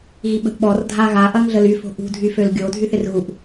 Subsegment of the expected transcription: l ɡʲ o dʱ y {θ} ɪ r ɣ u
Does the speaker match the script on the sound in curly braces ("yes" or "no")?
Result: yes